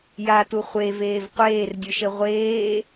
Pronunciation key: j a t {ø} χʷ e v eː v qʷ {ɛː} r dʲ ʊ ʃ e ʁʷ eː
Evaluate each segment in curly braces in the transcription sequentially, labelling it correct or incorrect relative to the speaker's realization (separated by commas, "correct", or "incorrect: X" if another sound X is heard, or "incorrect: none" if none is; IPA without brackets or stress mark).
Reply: incorrect: u, incorrect: eː